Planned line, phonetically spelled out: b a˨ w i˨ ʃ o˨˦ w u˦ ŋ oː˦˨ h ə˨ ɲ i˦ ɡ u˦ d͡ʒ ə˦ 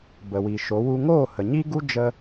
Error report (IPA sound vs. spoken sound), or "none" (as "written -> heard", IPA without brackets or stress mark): a˨ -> ə˨